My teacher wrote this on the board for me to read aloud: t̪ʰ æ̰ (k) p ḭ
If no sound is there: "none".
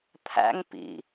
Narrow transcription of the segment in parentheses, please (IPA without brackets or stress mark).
ŋ